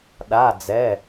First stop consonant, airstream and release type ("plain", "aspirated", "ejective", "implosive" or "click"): implosive